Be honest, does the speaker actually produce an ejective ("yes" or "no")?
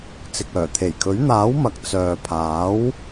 no